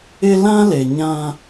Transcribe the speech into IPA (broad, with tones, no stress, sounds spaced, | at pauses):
ɪ˦ l ã˦ l e˨ ɲ ã˦